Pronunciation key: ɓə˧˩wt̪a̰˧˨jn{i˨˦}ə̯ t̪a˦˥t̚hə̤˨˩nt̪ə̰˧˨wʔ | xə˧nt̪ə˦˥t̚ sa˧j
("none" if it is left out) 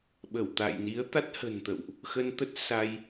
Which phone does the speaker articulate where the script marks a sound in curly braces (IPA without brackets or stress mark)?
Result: i˨˦